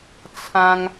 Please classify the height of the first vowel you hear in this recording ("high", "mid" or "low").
low